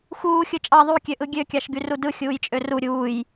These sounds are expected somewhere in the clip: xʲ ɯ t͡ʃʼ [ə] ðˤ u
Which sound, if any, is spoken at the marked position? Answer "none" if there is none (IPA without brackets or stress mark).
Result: ɑ